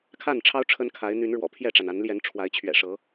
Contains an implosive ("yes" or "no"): no